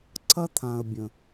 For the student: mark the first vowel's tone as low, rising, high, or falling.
high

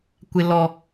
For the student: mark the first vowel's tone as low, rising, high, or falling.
low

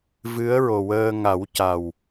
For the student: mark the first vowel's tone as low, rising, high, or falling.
rising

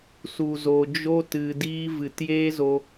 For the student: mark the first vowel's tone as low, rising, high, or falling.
low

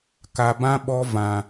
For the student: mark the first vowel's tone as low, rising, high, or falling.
low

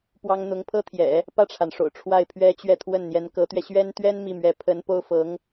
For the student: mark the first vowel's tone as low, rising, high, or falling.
high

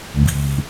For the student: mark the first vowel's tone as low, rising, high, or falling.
low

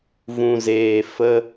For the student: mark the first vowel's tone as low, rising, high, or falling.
low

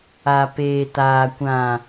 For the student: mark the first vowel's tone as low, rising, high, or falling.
low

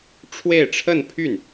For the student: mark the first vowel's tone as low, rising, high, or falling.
falling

